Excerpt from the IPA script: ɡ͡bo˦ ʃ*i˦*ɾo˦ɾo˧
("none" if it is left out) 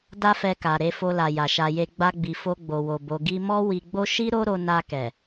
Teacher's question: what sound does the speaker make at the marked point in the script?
i˦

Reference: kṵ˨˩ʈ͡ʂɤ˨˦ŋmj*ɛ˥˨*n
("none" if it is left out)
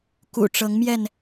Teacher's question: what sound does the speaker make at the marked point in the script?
ɛ˥˨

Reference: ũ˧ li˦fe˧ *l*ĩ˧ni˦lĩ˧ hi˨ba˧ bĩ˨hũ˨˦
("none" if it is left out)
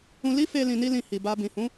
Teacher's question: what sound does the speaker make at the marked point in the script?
l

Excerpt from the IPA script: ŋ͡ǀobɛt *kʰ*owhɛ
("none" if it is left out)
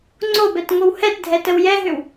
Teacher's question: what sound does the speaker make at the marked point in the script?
ŋ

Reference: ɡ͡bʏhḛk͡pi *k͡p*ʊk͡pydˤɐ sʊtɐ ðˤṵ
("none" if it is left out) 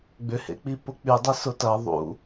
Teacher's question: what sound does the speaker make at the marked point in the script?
p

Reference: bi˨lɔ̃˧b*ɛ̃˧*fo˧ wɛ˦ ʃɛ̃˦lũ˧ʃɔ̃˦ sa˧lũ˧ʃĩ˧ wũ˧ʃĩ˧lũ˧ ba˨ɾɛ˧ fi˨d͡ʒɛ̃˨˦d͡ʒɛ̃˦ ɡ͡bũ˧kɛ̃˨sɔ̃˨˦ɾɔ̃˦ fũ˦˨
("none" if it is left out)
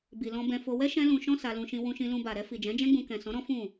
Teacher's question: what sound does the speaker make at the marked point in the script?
ɛ̃˧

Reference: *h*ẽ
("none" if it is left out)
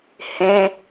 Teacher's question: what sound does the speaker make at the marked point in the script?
h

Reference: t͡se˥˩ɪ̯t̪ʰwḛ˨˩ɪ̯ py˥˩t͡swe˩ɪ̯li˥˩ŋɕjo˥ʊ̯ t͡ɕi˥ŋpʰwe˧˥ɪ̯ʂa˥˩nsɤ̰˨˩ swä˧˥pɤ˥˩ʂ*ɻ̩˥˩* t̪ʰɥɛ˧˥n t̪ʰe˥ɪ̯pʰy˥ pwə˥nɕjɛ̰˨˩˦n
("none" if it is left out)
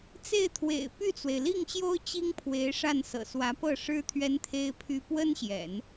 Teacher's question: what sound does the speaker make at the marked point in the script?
ɻ̩˥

